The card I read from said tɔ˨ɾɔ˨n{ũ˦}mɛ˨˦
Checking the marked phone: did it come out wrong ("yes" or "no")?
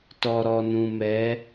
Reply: yes